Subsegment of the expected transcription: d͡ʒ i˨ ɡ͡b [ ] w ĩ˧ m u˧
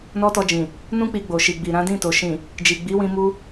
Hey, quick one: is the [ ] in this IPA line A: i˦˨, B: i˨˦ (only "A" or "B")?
B